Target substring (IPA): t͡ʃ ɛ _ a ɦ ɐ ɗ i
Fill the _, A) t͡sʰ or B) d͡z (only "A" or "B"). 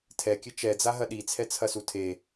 B